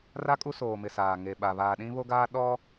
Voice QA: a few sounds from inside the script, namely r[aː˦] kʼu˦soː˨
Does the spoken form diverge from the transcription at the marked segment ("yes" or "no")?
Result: yes